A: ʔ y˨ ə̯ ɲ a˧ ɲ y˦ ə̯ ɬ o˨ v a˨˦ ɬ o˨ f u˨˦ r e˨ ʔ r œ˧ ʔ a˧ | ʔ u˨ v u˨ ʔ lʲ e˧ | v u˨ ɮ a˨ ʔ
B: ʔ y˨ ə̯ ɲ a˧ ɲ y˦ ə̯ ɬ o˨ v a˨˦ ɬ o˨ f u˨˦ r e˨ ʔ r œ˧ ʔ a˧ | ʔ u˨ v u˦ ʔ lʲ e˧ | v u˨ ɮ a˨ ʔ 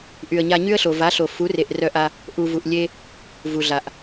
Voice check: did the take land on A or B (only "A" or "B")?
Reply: A